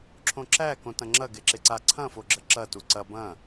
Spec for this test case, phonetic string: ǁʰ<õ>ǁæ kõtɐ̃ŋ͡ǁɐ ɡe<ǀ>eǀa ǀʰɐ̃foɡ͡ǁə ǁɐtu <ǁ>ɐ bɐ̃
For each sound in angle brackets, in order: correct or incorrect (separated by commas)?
correct, incorrect, incorrect